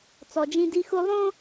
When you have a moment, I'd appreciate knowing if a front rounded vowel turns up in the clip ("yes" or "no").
no